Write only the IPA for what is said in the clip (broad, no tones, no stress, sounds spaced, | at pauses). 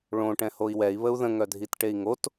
ɭ õ ʈ ɛ̃ h o i̯ w ɛ i̯ β ə u̯ ð ə̃ ŋ œ dʱ i t ʈ e i̯ ŋ o t